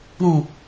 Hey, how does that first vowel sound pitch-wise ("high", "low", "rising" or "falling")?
low